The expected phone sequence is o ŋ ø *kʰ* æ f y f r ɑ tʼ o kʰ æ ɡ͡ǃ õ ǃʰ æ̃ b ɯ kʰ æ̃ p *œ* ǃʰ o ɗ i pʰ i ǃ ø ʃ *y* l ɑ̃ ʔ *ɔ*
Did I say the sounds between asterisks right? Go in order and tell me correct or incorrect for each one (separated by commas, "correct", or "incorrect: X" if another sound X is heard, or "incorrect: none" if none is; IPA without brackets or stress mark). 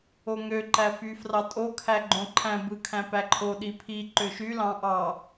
incorrect: ǃ, incorrect: æ, correct, incorrect: ɑ